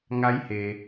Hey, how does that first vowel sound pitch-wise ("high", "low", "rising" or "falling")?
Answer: rising